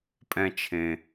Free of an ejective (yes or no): no